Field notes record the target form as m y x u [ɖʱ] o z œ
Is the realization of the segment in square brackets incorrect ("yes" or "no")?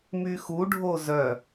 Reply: no